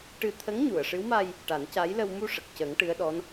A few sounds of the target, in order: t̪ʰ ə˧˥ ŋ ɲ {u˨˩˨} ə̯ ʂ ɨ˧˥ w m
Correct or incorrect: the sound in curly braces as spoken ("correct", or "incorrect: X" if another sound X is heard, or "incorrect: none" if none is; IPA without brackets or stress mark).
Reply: correct